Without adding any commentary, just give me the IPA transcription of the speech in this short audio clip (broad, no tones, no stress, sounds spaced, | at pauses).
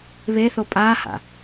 β e θ o pʼ a h a̰